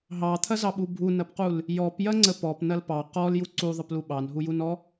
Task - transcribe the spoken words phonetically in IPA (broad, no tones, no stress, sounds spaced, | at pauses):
ɦ ɑ t̪ʰ ɐ z ɑ ɓ u bʱ u n ɐ p q u l | j ɔ p j ɐ ŋ͡ǀ ə p ɔ p n ɐ l p ɑ q ɔ l j u ǀ u ðˤ ə p l u ɓ ɑ n ɦ u j u n ɔ